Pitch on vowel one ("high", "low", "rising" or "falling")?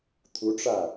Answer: rising